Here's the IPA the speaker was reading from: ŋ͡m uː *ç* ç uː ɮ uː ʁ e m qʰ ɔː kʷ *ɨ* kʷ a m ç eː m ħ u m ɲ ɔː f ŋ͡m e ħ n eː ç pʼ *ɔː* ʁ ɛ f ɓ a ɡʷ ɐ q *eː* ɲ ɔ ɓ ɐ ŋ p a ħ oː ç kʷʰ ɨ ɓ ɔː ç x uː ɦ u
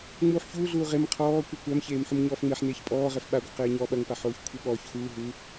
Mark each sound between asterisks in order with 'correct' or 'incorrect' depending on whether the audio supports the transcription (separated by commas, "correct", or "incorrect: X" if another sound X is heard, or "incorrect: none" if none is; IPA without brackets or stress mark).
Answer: incorrect: ħ, correct, correct, correct